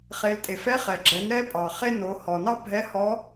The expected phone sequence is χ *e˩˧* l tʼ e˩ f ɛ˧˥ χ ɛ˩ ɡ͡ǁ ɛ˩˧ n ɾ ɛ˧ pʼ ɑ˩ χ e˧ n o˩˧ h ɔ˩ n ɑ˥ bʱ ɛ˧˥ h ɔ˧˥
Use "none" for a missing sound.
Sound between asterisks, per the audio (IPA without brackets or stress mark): e˩˧